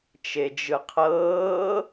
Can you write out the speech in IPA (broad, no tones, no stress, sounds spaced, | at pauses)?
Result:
t͡ʃ e d͡ʒ ɯ qʰ ɤː